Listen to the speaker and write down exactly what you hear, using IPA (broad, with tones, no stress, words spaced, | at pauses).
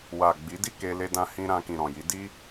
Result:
wa˨ ɡ͡bi˨˦di˦˨ke˧ le˧dã˧hĩ˧ ɾã˧kĩ˨ɾɔ̃˨ji˨˦ di˦